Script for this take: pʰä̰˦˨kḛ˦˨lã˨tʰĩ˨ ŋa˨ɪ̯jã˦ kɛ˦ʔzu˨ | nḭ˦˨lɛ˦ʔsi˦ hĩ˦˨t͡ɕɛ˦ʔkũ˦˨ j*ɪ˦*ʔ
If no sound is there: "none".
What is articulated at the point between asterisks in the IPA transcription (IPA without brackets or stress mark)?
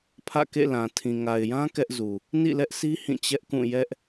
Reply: ɛ˦